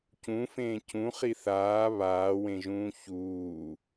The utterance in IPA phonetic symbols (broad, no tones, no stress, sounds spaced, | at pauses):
c ũ f ẽː c ũ χ i θ aː β aː w ẽ ʒ ũː ç uː